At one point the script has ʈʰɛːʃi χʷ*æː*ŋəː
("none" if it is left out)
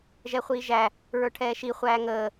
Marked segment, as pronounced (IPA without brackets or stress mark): æː